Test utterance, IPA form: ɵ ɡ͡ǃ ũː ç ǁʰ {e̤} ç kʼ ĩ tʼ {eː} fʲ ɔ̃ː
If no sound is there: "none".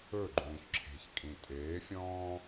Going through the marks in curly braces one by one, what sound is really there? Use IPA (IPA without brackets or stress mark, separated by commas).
e̤, eː